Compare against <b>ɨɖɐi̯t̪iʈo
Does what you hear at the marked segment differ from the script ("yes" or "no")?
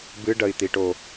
no